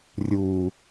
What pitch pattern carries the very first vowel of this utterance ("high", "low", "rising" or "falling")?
low